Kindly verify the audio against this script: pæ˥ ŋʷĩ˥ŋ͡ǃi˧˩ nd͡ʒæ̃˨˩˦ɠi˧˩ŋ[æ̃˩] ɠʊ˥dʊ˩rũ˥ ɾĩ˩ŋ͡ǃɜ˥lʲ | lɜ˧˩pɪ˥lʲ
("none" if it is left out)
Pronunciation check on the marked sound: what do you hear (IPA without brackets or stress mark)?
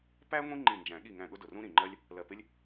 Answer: æ̃˧˩